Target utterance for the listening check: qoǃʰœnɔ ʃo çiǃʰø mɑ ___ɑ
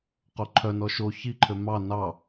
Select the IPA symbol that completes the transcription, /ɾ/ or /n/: n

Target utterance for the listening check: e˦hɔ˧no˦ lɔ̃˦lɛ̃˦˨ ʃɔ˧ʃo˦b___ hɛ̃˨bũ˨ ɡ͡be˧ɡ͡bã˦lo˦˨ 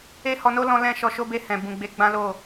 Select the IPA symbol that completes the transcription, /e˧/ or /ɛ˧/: e˧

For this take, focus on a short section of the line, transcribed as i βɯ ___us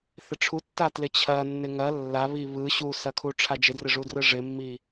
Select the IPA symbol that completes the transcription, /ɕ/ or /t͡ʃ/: ɕ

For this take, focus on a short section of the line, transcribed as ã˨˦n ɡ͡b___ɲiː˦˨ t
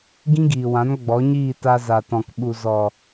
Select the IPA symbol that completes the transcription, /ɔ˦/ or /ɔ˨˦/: ɔ˨˦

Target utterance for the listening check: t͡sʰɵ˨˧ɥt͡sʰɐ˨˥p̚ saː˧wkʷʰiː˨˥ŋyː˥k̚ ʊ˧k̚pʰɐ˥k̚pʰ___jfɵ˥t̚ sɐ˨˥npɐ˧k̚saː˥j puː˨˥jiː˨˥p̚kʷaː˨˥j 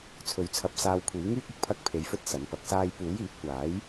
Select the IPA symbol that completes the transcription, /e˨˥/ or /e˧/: e˧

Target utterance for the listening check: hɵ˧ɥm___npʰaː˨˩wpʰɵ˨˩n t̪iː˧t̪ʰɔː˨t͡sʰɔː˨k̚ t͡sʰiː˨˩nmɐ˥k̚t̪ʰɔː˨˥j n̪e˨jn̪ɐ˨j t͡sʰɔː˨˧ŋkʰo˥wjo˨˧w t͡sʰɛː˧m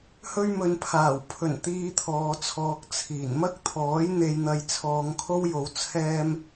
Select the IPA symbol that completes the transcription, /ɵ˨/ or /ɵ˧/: ɵ˨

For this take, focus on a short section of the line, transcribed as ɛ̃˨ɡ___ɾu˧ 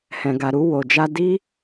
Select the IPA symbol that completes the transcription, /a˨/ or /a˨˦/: a˨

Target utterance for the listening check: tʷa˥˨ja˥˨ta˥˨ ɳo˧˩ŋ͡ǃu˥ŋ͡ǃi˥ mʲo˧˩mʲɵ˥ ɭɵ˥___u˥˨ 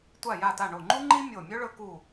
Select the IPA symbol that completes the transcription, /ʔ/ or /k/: k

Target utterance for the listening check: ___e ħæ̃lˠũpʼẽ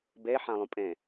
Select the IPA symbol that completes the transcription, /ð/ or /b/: b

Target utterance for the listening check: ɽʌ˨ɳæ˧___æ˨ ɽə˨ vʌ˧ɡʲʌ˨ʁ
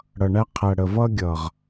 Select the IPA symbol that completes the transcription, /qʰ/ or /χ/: qʰ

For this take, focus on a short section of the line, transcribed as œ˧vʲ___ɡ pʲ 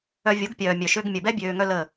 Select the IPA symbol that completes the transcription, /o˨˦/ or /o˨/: o˨˦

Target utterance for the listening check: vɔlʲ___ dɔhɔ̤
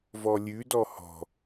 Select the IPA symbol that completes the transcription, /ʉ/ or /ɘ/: ʉ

